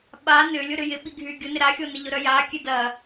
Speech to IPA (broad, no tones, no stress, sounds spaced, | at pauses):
ɓ a n ʏ lʲ ʊ ɾ ʏ j ɪ ɓ i ɡʱ y ɡʲ ʊ n ɪ ɾ a xʲ o n ɪ ʎ ʊ ɾ œ j a kʲ ø d ɐ